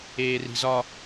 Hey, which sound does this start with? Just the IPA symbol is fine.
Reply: eː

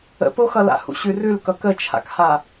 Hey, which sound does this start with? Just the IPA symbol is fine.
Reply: ə̰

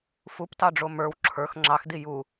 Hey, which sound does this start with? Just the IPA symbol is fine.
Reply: f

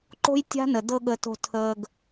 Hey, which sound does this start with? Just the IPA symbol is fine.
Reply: ǃ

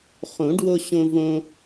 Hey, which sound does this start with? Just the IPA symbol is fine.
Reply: χ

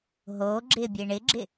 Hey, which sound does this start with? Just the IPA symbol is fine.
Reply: ɦ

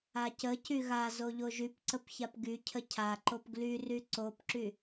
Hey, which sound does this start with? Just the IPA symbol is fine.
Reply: a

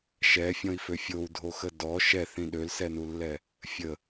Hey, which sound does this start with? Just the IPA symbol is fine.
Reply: ʃ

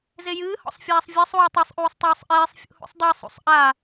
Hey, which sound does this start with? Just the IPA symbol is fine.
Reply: z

